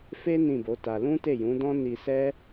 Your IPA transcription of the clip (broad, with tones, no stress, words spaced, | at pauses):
fe˦ nĩ˦˨bo˨˦ta˧ lũ˦te˦˨jũ˨˦dɔ̃˦ ni˧sɛ˦